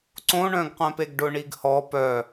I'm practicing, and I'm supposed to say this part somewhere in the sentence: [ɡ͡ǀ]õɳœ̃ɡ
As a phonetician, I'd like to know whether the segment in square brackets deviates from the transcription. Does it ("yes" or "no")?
yes